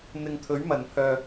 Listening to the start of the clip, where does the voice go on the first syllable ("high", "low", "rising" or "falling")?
low